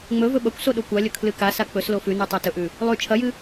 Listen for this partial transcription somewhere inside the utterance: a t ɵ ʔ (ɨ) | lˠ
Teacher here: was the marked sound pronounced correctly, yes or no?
no